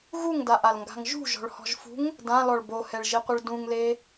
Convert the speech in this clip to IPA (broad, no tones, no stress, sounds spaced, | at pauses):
ɣ u ŋ d a ʔ a l ŋ ɡ a̤ ŋ ʒ ṳ ʒ ɔ̤ ɭ h ɔ̤ ʒ f ṳ ŋ | d ã l ɔ ɭ b o h ɛ ɭ ʒ i qʷ ɪ ɭ d ũ ŋ l e